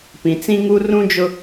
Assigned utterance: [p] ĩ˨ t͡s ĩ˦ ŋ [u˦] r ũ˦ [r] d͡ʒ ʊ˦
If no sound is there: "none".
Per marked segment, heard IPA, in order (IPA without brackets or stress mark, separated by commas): p, u˦, none